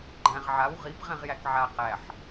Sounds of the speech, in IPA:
ɡ͡ǃ æ̃ ʁ ʕ a w ʁ i p ʁ ɛ̃ ʁ j æ k ʕ a q æ ħ

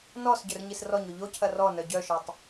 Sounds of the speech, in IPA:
n ɔ s ɟ œ r ɲ i s r ɔ ɲ o ʎ o cʰ ɐ r ɔ n œ ɟ œ ʃ ɔ tˤ

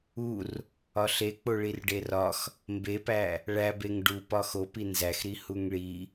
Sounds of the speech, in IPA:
u r | ɒ ɬ e k͡p o ɭ i r ɖ e r ɒ x | m b e p æ | ɭ æ b e ŋ ɖ u p ɒ x o p i n z æ x ɾ i h u ŋ ɭ i

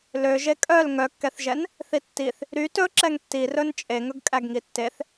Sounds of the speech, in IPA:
l ø ʒ e kʼ œ l ŋ œ kː ɛ θ ʒ ɛ n | θ i tː i θ | ɾ y t ɵ ǁ ɛ ŋ tː i r ɵ n t͡ʃʼ e ŋ ɵ ɡ kʼ æ ɡ ŋ i tː e θ

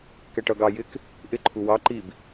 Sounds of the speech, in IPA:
k ɛ ʈ ʌ ɡ ɑ j ɪ k | ʔ ɪ ǃʰ u w ɑ ǃ i b

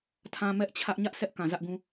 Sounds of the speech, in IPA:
tʰ ã˨ m ɛ˦ ʔ t͡ɕʰ ä˦ ʔ ɲ ä˦ ʔ sʰ ɛ˦ ʔ k ã˨ z ä˦ ʔ ɡ ũ˦

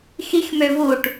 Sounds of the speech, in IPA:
x i x m ø v u ʈ

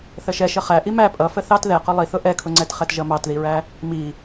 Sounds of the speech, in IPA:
θ ə ʃ ɛ ʃ ə χ æ ʔ i m æ pʼ ʌ f ə θ ɑ t ð ɛ q ʊ lˠ i θ ʊ ʔ ɛ kʰ ʊ ŋ͡ǀ ɛ t χ ɛ t ʒ ʌ m ɑ t ð i ɹ æ | m i

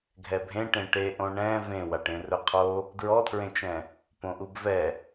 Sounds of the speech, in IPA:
ɡʱ ɛ bʱ ẽ ʈ ẽ ʈ e ʔ õ ɳ ɛ̃ v ẽ w a ʈ ẽ r ɵ qʰ o | d ɹ ɔ tʰ ɹ ẽ t͡ʃ ɛ̃ | p õ ʔ u b v ɛ

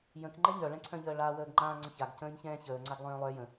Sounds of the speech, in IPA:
j ə̃ k ŋ͡ǃ ɛ ɲ œ ɭ ɛ̃ ǀʰ œ̃ ʎ əː ɭ a w əː ɡ ŋ͡ǃ ãː ŋ͡ǀ ə̃ ç a ɡ c ə̃ː ɲ ç ɛ̃ː ç əː ŋ͡ǀ a ɡ lˠ œ̃ː lˠ œ j ə̃

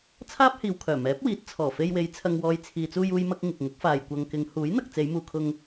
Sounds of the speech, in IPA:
t͡sʰ aː˥ p̚ h iː˨ w kʰ œː˨˩ m ɛː˨˥ p̚ w iː˨˥ t̚ t͡sʰ ɔː˨˩ f e˧ j w e˨˧ j t͡sʰ ɐ˨ ŋ w ɔː˨ j t͡sʰ iː˨ t͡s uː˧ j uː˧ j m ɐ˧ k̚ ŋ ɪ˨ k̚ ŋ ʊ˨˥ k̚ f aː˨ j kʷ ɐ˨ ŋ k ɪ˨˧ ŋ h uː˨˥ j n̪ ɐ˨ k̚ t͡s e˨˧ j m uː˨ kʰ ʊ˧ ŋ

